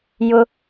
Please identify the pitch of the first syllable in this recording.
high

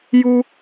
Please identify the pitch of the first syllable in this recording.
high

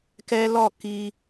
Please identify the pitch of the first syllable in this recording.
high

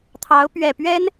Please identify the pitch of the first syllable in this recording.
rising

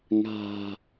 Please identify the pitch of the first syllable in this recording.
low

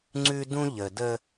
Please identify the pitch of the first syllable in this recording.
high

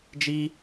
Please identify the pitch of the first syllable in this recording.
high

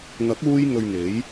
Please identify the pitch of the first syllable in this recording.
rising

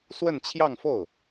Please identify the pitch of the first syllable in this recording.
falling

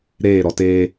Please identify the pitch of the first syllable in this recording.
falling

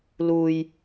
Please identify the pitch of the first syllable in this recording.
low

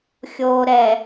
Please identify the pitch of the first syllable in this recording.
low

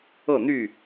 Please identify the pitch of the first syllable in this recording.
falling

